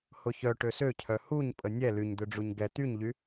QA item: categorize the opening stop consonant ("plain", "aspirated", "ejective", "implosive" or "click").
plain